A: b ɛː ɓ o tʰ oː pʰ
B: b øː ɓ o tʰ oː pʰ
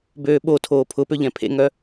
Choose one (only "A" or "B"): B